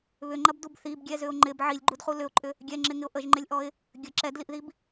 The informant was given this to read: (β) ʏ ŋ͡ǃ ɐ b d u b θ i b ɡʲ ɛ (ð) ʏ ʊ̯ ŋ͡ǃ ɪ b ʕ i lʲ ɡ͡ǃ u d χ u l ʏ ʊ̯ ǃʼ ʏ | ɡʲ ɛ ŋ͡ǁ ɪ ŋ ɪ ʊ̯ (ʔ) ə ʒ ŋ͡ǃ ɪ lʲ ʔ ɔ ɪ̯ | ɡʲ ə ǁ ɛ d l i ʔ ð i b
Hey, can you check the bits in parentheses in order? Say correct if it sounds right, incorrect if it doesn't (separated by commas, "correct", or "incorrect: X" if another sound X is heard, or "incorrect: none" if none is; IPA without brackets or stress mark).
correct, incorrect: z, correct